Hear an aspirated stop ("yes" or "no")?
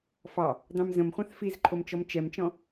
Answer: yes